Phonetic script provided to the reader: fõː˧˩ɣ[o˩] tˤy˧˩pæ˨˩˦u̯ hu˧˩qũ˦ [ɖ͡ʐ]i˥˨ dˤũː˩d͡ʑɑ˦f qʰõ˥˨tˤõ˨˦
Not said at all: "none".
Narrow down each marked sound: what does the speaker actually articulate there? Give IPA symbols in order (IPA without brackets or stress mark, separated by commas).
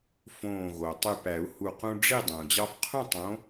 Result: o˩, ɖ͡ʐ